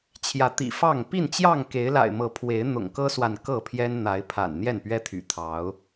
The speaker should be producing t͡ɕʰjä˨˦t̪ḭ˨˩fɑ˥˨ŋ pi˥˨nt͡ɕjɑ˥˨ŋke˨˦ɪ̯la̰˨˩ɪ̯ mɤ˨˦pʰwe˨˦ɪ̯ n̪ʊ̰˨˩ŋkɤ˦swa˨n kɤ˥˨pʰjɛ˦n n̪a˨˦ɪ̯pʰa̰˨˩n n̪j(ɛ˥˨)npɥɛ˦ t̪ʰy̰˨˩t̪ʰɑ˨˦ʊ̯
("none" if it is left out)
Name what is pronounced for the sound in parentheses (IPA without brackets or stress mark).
ɛ˥˨